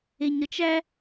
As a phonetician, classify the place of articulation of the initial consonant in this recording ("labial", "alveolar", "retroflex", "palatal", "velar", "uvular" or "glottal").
palatal